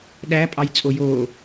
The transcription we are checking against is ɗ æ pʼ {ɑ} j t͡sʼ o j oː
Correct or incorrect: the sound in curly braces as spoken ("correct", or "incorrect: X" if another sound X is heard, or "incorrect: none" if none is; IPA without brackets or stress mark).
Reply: correct